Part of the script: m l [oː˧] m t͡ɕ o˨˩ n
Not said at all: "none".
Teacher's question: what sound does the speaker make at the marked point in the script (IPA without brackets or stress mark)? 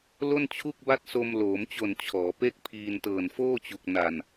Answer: oː˩˦